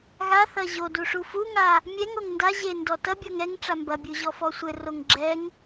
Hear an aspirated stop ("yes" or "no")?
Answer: no